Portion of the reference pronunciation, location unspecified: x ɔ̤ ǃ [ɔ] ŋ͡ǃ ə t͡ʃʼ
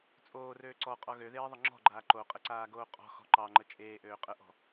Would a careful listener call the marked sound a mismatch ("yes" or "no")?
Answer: yes